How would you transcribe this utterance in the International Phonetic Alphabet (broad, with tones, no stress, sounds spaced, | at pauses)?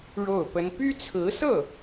ɻ o˥˩ ʊ̯ p ə˥ n p y˥ t͡sʰ ɹ̩˧˥ s ɤ˥˩